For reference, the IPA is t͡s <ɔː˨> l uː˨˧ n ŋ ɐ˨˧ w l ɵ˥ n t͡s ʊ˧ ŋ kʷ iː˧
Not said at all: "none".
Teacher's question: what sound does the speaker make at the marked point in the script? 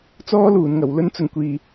ɔː˥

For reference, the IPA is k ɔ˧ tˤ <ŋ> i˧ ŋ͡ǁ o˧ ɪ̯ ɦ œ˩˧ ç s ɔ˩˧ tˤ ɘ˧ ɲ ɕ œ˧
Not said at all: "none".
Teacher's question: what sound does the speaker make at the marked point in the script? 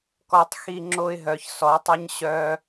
x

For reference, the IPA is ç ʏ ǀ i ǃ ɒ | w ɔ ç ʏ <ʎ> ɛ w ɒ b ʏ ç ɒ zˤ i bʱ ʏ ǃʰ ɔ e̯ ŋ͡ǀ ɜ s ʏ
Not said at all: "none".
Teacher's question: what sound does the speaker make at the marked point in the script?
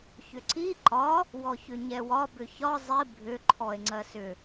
ɲ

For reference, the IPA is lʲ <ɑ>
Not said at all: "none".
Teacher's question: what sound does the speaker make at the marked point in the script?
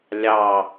ɑ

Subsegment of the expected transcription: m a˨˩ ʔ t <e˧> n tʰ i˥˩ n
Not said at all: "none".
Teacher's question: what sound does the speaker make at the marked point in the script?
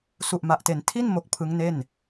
e˩˦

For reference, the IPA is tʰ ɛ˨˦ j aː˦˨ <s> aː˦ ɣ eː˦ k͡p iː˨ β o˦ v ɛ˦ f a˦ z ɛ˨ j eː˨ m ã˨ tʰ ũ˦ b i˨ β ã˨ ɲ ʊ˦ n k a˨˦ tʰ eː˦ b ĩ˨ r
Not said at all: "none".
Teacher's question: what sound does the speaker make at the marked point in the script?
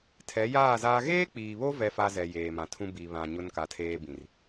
z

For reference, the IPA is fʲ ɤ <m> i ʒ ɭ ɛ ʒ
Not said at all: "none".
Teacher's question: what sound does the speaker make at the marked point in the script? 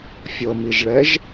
m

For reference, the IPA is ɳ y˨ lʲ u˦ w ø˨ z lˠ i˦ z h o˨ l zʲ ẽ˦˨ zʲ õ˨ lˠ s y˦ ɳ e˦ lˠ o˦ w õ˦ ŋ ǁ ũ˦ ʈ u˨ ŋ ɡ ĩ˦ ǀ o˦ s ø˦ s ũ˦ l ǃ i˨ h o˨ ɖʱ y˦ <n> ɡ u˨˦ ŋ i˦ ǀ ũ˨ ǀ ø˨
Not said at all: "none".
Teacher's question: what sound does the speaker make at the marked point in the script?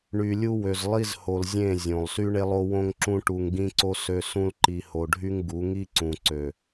ŋ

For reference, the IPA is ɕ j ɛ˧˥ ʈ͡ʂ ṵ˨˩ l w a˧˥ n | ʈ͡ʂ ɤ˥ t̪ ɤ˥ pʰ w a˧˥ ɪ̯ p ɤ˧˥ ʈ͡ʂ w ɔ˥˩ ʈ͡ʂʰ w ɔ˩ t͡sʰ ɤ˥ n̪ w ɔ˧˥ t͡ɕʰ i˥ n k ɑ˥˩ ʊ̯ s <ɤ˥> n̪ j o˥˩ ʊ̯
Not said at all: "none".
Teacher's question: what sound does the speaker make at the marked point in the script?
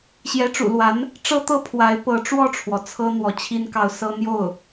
ɤ˥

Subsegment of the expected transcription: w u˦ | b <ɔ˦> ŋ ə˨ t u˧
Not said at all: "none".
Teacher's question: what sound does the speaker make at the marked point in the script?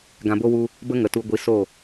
ə˦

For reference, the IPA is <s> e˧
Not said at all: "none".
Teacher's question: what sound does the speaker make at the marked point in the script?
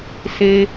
s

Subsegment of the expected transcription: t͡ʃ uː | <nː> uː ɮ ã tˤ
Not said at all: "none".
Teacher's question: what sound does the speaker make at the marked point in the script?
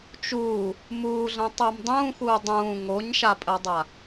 m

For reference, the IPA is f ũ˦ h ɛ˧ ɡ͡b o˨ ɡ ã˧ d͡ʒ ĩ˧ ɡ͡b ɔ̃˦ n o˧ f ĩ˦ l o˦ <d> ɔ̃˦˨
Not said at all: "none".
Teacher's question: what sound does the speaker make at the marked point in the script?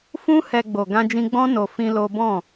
b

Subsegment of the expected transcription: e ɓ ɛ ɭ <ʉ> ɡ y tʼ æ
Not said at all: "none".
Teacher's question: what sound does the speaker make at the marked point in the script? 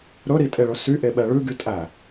ʉ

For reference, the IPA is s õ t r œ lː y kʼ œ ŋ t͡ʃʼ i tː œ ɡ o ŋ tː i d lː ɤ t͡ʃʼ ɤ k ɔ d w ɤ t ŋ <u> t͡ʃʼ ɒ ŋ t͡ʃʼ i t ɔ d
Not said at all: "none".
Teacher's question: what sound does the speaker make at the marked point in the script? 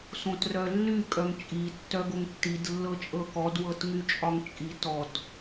y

